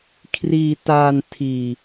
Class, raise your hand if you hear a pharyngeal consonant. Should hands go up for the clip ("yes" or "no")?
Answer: no